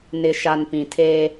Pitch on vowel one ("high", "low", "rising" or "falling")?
low